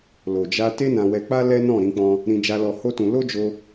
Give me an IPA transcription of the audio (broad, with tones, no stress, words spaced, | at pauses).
lo˨d͡ʒa˧ te˦nã˧wɛ˧k͡pa˦ lɛ˦nɔ̃˦˨ɾĩ˧k͡pɔ̃˧ | ɾĩ˧d͡ʒa˧lɔ˧ ho˦tũ˧ lo˦d͡ʒo˧